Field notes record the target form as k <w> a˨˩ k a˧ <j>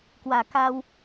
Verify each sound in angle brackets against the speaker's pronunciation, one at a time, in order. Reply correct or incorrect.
correct, incorrect: w

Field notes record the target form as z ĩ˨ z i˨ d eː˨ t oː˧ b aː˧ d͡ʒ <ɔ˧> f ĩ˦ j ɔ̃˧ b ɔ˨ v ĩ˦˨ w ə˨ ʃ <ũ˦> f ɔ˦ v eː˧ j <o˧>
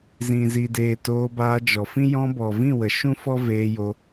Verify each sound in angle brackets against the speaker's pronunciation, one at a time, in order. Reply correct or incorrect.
incorrect: ɔ˨, correct, correct

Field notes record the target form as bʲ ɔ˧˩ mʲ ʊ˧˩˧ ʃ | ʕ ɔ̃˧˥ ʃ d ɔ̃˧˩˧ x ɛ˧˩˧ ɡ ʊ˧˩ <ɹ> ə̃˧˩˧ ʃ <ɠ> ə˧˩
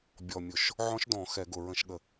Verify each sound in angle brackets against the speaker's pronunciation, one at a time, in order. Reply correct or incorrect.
correct, correct

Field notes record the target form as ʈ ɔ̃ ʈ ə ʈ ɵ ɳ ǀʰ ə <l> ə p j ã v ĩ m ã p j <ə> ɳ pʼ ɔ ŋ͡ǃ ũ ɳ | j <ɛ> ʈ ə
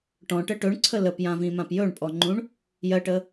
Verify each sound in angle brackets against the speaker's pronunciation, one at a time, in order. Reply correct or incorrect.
correct, incorrect: ɵ, incorrect: ɜ

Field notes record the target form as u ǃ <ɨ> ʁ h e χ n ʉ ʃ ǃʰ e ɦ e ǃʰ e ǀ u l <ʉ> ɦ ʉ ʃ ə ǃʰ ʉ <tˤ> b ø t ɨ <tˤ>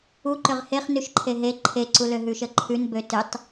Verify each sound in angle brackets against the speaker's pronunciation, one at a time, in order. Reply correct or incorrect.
incorrect: ʏ, incorrect: ø, incorrect: n, correct

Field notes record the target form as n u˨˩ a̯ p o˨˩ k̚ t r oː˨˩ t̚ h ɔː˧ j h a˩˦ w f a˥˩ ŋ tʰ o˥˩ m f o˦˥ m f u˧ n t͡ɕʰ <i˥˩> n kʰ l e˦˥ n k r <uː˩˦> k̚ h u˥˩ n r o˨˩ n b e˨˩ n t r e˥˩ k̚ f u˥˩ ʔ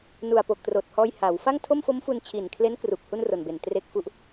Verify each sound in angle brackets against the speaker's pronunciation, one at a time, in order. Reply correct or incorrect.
incorrect: i˨˩, incorrect: uː˨˩

